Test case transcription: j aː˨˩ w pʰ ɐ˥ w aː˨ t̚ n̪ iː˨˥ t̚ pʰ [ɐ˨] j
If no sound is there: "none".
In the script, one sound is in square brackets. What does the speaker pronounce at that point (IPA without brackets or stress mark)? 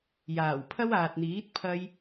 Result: ɐ˥